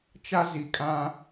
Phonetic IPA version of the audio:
t͡ʃ a˦ z i˨ kʼ ã˦

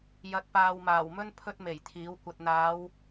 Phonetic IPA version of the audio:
j ɐ˨ t̚ p aː˨ w m aː˨˩ w m ɵ˥ n pʰ ɵ˥ t̚ m e˨˩ j t̪ʰ iː˨˥ w kʷ ɐ˧ t̚ n̪ aː˨˧ w

